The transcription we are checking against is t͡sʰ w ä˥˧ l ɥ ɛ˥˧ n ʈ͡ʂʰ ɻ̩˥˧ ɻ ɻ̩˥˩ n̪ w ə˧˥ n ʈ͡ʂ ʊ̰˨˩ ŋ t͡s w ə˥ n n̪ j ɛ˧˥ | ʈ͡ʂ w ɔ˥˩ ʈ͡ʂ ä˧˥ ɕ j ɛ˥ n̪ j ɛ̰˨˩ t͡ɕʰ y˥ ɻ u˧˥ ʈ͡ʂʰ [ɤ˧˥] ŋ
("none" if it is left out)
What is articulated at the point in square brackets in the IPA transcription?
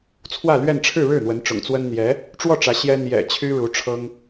ɤ˥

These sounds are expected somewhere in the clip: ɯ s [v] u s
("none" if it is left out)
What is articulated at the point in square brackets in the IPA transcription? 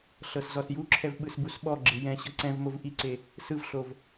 b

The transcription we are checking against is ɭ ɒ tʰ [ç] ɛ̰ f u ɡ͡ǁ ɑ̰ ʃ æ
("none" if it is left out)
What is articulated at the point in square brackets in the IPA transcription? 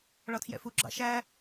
j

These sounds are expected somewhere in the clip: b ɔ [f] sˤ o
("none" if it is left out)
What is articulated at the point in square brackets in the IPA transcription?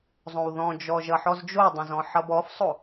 f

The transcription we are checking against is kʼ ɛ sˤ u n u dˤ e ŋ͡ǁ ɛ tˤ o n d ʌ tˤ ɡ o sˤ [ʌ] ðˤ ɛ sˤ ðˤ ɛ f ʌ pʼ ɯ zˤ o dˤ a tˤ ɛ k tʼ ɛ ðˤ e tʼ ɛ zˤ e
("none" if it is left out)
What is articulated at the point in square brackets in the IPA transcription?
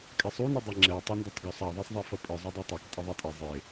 a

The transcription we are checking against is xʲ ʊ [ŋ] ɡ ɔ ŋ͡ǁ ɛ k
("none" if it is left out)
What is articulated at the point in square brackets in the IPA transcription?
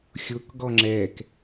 k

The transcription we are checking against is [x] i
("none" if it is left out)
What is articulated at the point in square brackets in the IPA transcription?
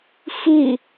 x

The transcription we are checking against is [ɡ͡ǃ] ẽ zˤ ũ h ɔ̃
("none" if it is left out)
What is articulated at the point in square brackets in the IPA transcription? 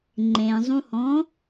ŋ͡ǃ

